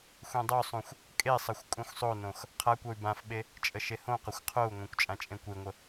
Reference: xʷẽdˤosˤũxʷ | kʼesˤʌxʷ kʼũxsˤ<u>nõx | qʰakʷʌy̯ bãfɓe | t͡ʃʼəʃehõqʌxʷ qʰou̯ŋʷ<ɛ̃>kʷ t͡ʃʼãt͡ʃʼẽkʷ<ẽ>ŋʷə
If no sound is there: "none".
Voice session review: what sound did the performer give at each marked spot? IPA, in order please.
o, ẽ, e

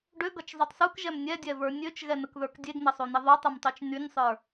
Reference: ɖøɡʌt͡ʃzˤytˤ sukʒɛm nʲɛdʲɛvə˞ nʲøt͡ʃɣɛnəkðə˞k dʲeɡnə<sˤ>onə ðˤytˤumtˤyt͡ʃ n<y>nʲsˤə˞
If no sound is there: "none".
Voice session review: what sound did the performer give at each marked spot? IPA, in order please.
sˤ, y

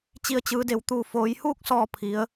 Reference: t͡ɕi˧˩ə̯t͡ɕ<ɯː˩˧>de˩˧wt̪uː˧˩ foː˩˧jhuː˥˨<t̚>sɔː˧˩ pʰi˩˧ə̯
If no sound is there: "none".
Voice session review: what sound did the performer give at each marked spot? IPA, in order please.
ɯː˩˧, k̚

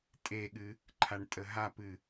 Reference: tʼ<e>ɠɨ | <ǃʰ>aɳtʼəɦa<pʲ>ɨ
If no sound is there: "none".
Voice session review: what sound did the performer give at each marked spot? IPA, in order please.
e, ǃʰ, p

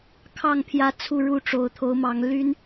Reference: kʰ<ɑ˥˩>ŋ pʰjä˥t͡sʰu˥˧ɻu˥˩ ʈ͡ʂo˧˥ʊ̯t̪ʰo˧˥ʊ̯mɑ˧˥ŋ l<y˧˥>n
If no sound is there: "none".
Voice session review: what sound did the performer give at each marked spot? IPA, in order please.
ɑ˥˩, y˥

